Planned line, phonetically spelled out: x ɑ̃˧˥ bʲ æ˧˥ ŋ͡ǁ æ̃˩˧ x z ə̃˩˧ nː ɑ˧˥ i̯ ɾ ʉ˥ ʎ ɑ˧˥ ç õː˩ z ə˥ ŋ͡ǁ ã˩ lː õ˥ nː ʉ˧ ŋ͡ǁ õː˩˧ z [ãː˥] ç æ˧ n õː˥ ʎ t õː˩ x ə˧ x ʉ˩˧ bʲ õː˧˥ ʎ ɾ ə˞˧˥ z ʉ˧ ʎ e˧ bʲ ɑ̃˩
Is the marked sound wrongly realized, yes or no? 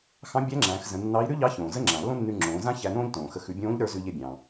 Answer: yes